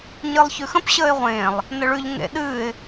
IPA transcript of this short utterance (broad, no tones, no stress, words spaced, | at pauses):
ɲɨlˠçʉxə̃p ɕəːɪ̯ʁʷẽːlˠ | nəɭʉʎ ŋḛɗɨːɪ̯